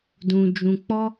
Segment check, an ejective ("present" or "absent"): absent